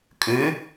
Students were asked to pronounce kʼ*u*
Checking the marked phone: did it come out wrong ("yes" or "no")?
yes